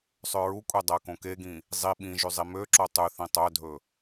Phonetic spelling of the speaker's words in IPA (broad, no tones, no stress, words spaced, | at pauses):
sˤøɹukʷʼe dˤækõkeɡĩ | zˤi ɓĩʒy zˤimøǁo tˤʉθĩ tˤœdʱɵ